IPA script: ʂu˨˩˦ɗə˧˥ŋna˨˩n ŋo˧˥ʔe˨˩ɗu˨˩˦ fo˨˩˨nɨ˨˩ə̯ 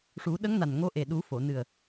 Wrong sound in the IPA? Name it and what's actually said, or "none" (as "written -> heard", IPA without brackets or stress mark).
none